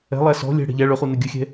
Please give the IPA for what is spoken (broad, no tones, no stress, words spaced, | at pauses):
ɛ̤lˠæ sɔ̤ lʲɛ̤ ɽɛ̤ʎæ ɭɵχu nɛɡʲɵxʲɛ̤